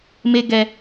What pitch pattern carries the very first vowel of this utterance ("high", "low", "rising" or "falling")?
high